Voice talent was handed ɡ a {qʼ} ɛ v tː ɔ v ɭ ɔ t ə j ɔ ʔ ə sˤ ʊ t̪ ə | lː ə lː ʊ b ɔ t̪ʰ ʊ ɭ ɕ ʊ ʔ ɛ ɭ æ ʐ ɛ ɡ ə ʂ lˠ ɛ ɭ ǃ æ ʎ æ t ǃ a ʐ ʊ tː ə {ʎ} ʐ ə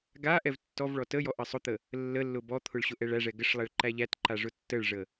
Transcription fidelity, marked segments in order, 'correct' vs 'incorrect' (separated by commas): incorrect, incorrect